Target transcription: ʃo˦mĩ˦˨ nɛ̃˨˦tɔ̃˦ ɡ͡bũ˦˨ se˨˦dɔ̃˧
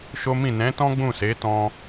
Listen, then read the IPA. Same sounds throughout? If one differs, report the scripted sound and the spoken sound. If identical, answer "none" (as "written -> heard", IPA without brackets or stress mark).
d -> t